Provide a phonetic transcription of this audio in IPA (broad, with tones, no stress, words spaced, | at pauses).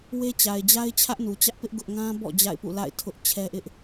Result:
we˦t͡ɕa˨ɪ̯d͡ʑa˦ɪ̯ t͡ɕʰä˦ʔnu˨t͡ɕä˦ʔpɪ˦ʔ ɡʊ˦ʔ ŋã˦bɔ̰˦˨ d͡ʑa̰˦˨ɪ̯pṵ˦˨la̰˦˨ɪ̯ tʰʊ˦ʔt͡ɕʰɛ˦ʔɪ˦ʔ